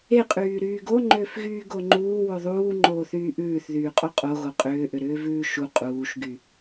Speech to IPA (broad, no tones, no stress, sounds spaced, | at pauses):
e qʼ yː ɾ yː ɡ o ŋ͡ǃ ʏː f ɣ yː ɡ o ŋ͡ǃ uː w ʉ ðˤ uː ŋ͡ǃ oː θ yː ʔ ʉː θ ð yː qʼ o qʼ o ɣ o qʼ ʏː ʔ ʏ ɾ ʏː v ʉː ʃ u qʼ uː ʃ ɡ y